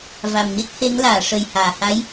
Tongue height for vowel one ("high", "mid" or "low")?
low